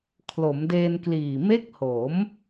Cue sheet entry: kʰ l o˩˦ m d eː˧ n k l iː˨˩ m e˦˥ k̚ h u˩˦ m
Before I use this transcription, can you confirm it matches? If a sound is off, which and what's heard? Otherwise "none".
u˩˦ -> o˩˦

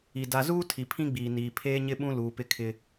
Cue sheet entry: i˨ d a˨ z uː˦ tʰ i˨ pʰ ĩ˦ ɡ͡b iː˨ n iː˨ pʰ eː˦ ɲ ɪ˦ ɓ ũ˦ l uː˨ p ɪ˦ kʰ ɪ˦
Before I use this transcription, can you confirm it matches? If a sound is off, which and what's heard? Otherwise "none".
none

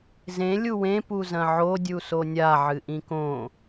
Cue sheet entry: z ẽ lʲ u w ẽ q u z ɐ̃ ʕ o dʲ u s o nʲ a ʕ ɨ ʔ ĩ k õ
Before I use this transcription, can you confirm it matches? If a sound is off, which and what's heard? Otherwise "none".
q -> p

